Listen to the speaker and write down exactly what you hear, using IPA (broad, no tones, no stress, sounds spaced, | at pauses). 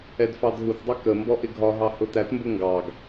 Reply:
ɛ d f ɑ d ɦ u t dˤ ʌ k ə m b ɔ ʔ ɪ ɡʱ ɒ ɦ ɑ h ʊ t æ t m b ʊ ŋ ɡ ɑ ɡ